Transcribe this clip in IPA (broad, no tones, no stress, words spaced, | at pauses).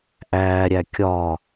ʔæːɾʲæ kʲɒ